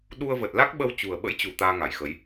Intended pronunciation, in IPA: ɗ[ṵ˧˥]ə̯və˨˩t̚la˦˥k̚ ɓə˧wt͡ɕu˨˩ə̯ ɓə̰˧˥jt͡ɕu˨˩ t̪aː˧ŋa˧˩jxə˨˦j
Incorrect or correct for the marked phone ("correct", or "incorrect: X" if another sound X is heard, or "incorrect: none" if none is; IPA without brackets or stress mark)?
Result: incorrect: u˧